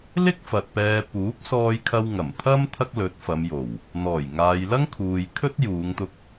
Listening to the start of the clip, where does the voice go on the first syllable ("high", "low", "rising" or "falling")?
high